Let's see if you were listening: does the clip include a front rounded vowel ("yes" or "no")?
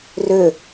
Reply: yes